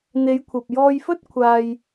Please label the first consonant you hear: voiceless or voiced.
voiced